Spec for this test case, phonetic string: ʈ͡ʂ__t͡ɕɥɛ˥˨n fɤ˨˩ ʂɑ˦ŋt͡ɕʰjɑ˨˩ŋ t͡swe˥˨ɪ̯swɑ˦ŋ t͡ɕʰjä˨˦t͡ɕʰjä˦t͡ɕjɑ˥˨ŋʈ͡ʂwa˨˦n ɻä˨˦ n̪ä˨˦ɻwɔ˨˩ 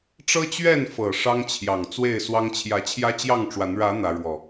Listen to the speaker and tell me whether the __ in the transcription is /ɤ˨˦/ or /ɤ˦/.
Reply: ɤ˦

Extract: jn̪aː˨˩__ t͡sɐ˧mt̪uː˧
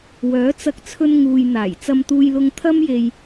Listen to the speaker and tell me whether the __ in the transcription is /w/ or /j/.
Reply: j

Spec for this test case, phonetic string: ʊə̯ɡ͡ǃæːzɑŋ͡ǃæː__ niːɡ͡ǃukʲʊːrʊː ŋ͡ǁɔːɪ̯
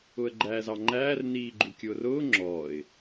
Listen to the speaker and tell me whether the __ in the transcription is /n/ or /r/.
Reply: r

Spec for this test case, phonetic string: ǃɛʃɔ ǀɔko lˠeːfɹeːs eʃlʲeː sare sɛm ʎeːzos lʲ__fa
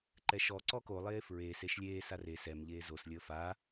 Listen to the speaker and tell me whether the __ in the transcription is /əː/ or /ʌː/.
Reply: əː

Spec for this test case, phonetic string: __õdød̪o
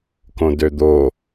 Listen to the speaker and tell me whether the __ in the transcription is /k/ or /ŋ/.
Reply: k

